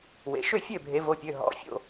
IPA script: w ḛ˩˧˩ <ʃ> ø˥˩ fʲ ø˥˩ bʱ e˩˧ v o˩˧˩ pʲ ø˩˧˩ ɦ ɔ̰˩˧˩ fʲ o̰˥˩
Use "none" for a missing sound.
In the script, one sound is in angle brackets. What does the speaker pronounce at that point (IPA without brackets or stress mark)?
ʃ